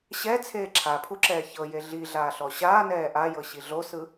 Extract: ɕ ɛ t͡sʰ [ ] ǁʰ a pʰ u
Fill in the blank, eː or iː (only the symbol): eː